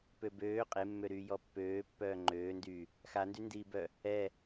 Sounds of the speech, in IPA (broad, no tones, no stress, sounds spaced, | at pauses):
p ø b øː qʼ e mː ø ɾ yː j ɔ pː øː pː œː ŋ͡ǃ øː n d yː | x a n d y n d iː b œ | ɛ